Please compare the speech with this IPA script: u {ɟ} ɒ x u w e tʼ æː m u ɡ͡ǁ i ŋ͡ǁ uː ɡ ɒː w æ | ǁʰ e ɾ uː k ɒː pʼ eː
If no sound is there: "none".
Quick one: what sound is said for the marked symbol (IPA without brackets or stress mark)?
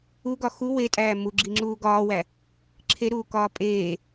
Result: ɡ